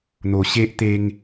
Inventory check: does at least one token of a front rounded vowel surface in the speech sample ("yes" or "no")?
no